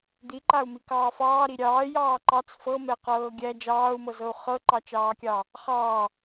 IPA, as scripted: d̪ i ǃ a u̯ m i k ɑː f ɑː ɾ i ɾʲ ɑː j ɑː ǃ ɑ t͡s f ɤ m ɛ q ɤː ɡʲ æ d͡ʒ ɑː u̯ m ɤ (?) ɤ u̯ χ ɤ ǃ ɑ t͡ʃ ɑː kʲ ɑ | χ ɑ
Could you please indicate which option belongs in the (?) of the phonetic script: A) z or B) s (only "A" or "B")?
A